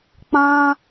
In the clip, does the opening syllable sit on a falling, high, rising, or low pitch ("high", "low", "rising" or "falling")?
high